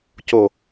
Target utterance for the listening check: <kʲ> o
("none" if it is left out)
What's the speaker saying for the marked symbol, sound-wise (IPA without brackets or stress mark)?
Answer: c